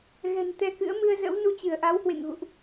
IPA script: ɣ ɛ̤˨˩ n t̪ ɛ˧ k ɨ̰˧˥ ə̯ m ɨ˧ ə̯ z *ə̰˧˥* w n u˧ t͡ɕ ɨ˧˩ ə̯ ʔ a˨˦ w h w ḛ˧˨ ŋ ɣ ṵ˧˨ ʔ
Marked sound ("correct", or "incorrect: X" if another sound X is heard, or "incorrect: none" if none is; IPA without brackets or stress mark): correct